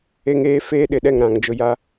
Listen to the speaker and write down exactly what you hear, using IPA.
e˦ ŋ eː˦ f eː˦ ɗ ɪ˨ ɗ ɛ˦˨ ŋ ɾ ã˨ ŋ d͡ʒ ʊ˨ j a˦

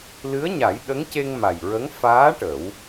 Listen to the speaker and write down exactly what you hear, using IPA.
l ɨ˧˥ ə̯ ɲ a˨˩˦ j ɗ ə˧˥ ŋ c e˧ ŋ m a˨˩ j ɹ ə˧˥ ŋ f aː˧˥ ʈ ə˨˩˦ w

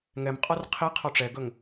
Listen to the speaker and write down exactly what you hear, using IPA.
ŋ ɛ m qʼ ɔ r qʰ i qʰ ɔ ʈ͡ʂ ɛ ɡ ɵ ŋ

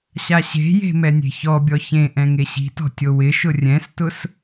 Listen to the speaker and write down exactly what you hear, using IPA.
ɕ a ɕ e̤ j e̤ m ɛ nʲ e̤ ç ɔ bʲ ɔ ç ẽ ʔ ɛ̃ ŋ e ɕ i̤ t ɔ̤ tʲ o w ɪ ʃ ʊ rʲ ɛ̃ s t ʊ s

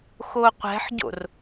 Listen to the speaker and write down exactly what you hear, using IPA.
x o qʷ ɛ̤ ħ ɟ o̰ r

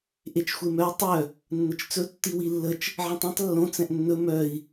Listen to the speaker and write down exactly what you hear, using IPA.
ʔ e t͡ʃ xʷ e m œ i̯ tˤ œ | nː ə t͡ʃ t͡s ɵ tː i w i lː ə t͡ʃ | ʕ ẽ tˤ ĩ tˤ lː õ t͡s ɛ̃ ʔ nː ɵ m œ i̯

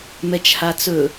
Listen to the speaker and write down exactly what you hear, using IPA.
m ɛ t͡ʃ h a t͡s ɵ

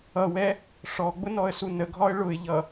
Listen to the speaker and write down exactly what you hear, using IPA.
ʌ w ɛ | ʂ ɔ ɡ͡b ʊ n ɔ ə̯ s u n ə ɡʱ ɒ ə̯ ɭ ʊ ɪ̯ ʎ ʌ

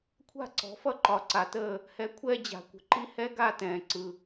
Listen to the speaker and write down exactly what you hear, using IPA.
kʷʰ a̤˥˩ ǀ ɔ̤˩˥ f ʌ˥˩ ǃ ɒ˩ ǀ a˩ t əː˥˩ | h ɛ˩˥ kʷʰ ɛː˧ d͡ʑ a̤˩ kʷ ə̤˧ ǃ i˥ h ɛ˥ ɡ a˥˩ t ɛ̃ː˩ ǀ ɯ˩

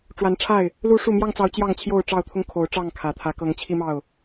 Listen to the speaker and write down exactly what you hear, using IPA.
ʈ͡ʂ w a˨˦ n ʈ͡ʂʰ a˥˨ ɪ̯ | l u˦ ʂ u˥˨ m j ɑ˥˨ ŋ t͡s ɑ˨˦ ʊ̯ t͡ɕ j ɑ˥˨ ŋ t͡ɕʰ j o˥˨ ʊ̯ ʈ͡ʂ ɑ˥˨ ʊ̯ t̪ʰ ʊ˦ ŋ kʰ o˨˦ ʊ̯ ʈ͡ʂ ɑ˥˨ ŋ kʰ ä˨˩ t̪ʰ ä˨˦ k ɤ˨˦ ŋ t͡ɕʰ i˦ m ɑ˥˨ ʊ̯

